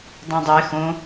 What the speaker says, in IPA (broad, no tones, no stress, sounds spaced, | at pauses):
dˤ ɛ̃ dˤ ɛ x õ